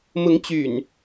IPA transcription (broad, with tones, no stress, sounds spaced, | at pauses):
m ʊ˨˦ ŋ t͡ɕ y̰˨˩ n